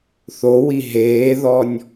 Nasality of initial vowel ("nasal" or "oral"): oral